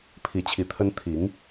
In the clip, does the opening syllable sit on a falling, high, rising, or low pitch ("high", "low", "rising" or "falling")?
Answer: rising